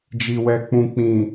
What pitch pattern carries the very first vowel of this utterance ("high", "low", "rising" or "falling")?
low